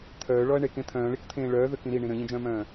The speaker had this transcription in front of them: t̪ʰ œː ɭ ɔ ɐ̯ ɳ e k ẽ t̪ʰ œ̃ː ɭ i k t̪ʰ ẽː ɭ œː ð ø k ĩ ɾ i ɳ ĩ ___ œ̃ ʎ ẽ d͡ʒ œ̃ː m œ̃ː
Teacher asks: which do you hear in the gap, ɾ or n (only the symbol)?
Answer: ɾ